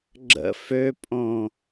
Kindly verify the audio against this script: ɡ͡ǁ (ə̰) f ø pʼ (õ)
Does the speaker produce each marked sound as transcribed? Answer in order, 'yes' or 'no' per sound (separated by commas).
yes, yes